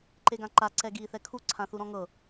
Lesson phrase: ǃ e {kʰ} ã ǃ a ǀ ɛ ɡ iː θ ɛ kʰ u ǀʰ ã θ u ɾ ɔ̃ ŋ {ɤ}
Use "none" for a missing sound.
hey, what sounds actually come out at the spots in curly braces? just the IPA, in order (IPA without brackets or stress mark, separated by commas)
ɡ, ɤ